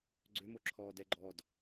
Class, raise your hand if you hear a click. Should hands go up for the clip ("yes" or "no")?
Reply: yes